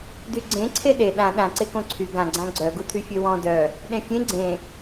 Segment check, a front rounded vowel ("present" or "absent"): present